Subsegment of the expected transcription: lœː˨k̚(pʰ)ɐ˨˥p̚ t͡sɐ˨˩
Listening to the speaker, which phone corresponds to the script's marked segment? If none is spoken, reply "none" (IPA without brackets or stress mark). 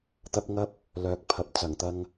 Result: pʰ